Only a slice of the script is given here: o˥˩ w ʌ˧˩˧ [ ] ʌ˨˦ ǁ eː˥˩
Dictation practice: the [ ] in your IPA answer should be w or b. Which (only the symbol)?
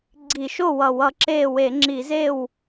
w